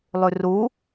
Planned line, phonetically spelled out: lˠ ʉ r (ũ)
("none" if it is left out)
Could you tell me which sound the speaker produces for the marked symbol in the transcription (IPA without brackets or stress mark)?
u